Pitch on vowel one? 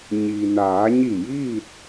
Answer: low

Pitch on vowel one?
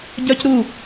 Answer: high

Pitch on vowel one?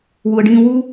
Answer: low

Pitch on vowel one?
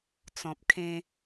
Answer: low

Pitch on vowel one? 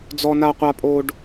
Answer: high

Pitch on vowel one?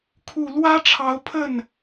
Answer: low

